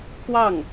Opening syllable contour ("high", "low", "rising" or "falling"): falling